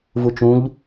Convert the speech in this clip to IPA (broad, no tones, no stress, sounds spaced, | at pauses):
v u t͡ʃ ũ ʎ